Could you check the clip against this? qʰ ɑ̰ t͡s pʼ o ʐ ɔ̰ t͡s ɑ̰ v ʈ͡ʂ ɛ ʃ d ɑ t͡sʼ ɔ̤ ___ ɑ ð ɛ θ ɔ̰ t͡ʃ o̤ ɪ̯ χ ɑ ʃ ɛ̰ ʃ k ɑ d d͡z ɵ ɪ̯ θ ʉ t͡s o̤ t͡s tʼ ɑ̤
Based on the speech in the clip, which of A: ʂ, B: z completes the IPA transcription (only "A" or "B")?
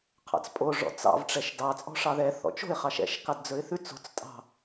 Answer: A